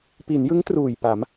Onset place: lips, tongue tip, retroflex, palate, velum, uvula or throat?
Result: lips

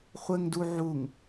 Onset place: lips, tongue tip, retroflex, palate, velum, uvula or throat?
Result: uvula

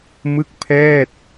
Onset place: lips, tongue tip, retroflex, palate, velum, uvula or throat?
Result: lips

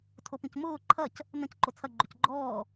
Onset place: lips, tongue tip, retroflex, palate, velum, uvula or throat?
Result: tongue tip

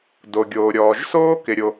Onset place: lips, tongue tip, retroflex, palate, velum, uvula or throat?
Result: tongue tip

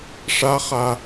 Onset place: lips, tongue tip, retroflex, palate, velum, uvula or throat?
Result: retroflex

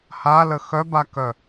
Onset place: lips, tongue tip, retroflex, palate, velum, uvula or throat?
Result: throat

